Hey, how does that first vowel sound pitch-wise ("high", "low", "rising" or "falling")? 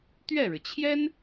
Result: falling